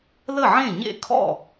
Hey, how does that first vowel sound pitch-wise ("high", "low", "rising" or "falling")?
falling